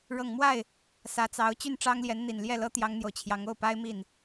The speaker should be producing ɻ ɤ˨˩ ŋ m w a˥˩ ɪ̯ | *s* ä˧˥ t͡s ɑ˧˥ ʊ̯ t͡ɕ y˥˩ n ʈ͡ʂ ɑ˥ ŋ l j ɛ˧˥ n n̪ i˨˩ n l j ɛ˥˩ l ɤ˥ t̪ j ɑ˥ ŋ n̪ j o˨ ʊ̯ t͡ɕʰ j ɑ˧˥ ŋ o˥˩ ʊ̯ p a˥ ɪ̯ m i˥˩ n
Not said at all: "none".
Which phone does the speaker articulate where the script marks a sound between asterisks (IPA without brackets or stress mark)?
s